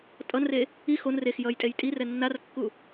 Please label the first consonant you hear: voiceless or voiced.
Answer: voiceless